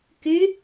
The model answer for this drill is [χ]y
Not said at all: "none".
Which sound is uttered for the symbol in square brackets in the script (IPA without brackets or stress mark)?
k